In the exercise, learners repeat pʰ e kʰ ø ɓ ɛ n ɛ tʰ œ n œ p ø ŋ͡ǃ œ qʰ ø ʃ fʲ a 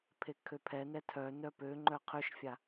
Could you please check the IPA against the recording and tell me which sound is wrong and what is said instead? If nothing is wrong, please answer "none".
ɓ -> pʰ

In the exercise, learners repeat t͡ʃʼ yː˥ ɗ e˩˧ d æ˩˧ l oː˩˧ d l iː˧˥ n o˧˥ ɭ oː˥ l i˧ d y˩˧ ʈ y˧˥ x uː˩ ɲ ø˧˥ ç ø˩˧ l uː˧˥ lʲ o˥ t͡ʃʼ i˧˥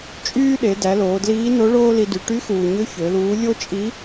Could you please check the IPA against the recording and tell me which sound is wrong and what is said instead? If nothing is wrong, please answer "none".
none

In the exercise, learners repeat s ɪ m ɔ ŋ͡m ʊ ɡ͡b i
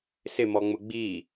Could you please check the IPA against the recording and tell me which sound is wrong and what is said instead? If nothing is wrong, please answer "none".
none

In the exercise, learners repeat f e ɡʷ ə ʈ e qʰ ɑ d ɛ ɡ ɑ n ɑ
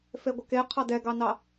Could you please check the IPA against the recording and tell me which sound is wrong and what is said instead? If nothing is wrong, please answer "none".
ʈ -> k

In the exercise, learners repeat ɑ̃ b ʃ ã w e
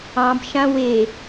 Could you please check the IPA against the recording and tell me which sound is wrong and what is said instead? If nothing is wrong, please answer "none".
none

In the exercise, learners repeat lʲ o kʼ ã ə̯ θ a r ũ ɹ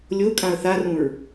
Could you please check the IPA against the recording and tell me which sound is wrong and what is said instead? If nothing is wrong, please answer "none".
none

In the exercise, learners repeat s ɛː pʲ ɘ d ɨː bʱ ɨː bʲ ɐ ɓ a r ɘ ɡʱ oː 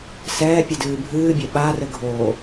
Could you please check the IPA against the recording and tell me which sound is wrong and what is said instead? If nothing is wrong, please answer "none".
none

